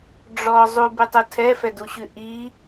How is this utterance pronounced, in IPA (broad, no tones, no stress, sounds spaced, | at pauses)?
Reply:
ɖ͡ʐ ɔ zˤ u b ʉ tˤ u tʰ ɛ f ɛ d u ɕ ʉ ʔ i